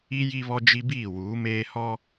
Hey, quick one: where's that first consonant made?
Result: palate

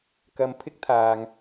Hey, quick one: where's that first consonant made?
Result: velum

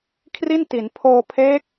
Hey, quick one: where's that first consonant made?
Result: velum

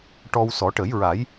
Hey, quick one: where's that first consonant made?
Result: retroflex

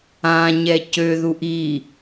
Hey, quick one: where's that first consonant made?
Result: palate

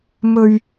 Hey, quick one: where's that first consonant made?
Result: lips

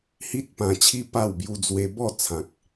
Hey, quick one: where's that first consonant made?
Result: throat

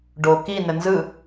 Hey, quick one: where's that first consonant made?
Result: retroflex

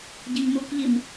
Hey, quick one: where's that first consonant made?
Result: palate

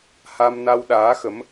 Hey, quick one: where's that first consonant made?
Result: throat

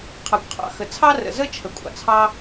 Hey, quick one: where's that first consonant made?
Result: uvula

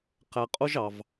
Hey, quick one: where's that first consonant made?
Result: uvula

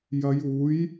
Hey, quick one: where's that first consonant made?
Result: palate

